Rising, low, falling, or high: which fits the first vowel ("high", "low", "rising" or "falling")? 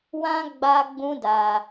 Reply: high